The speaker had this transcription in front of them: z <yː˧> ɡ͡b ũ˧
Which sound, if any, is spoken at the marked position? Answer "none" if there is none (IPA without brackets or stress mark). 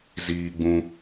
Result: iː˧